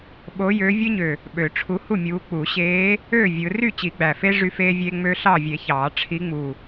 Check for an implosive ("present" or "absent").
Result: present